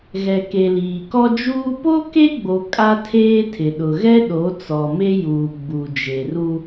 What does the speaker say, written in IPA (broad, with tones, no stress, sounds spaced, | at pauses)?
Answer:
ɣ ɛ˨ k e˨ l iː˨ k ɔ˦ d͡ʒ uː˦ p o˦ k e˦ ɡ͡b o˨ kʼ a˦ tʰ eː˦ tʰ ɪ˨ ɗ ʊ˨ ɣ ɛ˦ ɗ o˨˦ t͡s ɔ˨ m e˦ j uː˨ ɡ͡b u˨ d͡ʒ e˨ r u˦